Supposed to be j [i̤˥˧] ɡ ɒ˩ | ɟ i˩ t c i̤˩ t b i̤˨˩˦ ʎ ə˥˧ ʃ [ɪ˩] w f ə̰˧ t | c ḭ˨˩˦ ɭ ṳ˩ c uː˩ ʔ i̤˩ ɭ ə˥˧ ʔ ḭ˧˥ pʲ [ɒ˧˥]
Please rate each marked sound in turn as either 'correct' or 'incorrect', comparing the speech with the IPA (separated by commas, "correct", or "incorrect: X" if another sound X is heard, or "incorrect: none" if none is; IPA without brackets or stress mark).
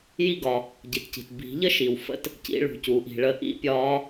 incorrect: i˥˧, incorrect: i˩, incorrect: ɒː˧˥